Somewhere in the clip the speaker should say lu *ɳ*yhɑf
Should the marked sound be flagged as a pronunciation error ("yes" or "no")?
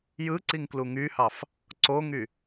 yes